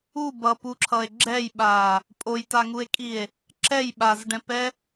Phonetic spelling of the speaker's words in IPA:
u b ʌ p u ǁʰ ʌ e̯ ɡ͡ǁ ɛ j ɓ a | pʼ o j t a ŋ u e̯ kʼ i e̯ | ǁ ɛ j ɓ a z ɖ ɛ̃ p ɛ

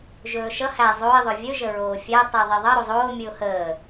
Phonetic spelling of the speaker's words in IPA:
ʒ ɵː ʃ ʌ h æ zˤ o ɪ̯ ðˤ ɵ vʲ ɵ ʒ ə ɹ oː fʲ æ tˤ i ə̯ ðˤ i ðˤ ʌ ɾ o zˤ oː mʲ ɯ ʊ̯ h əː

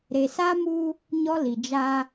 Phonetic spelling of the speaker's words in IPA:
ɾ e˨ s a˦ m u˦ | ɲ ɔ˦ l i˨ d͡ʒ a˦

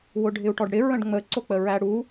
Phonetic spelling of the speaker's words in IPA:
w ʊ ɖʱ ɪ u̯ ʈ ɔ ɖ ɽ ɪ ɹ ə̃ ɖ ŋ͡m ə ǀ ʊ k͡p ə ɹ æ ɽ u

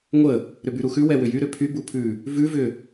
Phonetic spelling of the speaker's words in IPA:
ŋʷ ə | ɾ ʏ b y ɾ u x ʉ w ɛ w ʏ j y ɾ ʏ pʰ y b u pʰ ʉ | v ʉ v ʏ

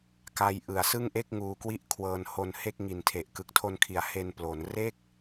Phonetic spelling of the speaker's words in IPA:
k a˦˥ j ʔ ɯ˨˩ a̯ s ɯ˥˩ ŋ ʔ e˥˩ k̚ ŋ uː˧ k w i˥˩ ʔ kʰ w ɤː˧ n h o˧ n h e˥˩ k̚ ŋ i˨˩ n tʰ e˨˩ ʔ k ɯ˨˩ k̚ tʰ o˧ n kʰ i˩˦ a̯ h e˧ n p l o˩˦ n r e˥˩ k̚

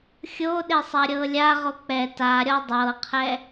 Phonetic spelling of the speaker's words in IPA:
xʲ o ɗ e sˤ a ɾʲ ɤ lʲ a ʁ o k͡p ɛ t a ɾʲ ɔ dˤ ɤ qʰ ɛ

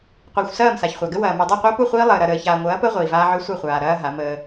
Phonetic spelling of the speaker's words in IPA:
qʷ ɛ˨ xʷ s ɐː˦˨ m s a˨ ç χʷ a˨ ɡ ə˦ w ɐː˨ m u˨ dˤ a˦˨ qʷ əː˦ p u˦˨ χʷ iː˦ lˠ əː˨ ɾ ɐ˨ ɾ əː˨ ç aː˨ ŋʷ ɐː˨˦ p əː˦ ʁʷ iː˨ v aː˦ ʕ ø˦ sʷ ɐ˦˨ χʷ aː˨ ɾ ɐː˦ ɦ a˨˦ m əː˦

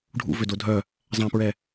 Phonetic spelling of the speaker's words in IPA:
ɖʱ ṵ v ø d o dʱ œ | zˤ æ̃ p ɹ ɛ

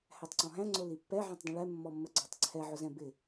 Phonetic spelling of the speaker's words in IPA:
h æ tˤ ǀ ɔ̃ ɦ æ̃ ŋ͡ǀ ʊ l i pː ɛ ʕ ɛ̃ tˤ dˤ ə̃ ɭ ɛ mː ɔ mː ə ɡ͡ǀ ɑ tˤ ǀʰ ɛ ʕ ʊ z ɛ̃ b ɪ

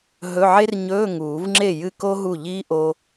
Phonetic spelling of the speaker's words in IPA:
ɦ ɵ˧˥˧ ʕ e˥ r ɲ ɵː˧˥˧ ŋ uː˨˩˦ v ŋ͡ǁ e˥˩ j ɨ˥˩ k o˥ ɦ u˥˩ ʎ iː˥ ʔ o˥

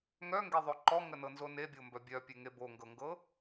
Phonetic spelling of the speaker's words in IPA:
ŋ œ ŋ ɡ e ðˤ o ǃ ɔ ŋ ə n ɤ n z o n e bʲ o m b œ bʲ œ pʲ e ŋ e b o ŋ ɡ ɤ ŋ ɡ ɤ

